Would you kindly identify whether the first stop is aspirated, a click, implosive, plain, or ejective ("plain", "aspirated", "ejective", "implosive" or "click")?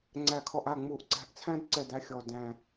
click